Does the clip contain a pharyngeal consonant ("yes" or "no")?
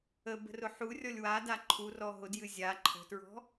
yes